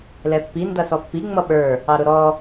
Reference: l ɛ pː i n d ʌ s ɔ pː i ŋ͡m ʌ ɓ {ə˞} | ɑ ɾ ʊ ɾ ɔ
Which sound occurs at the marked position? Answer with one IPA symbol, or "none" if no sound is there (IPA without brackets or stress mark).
ə˞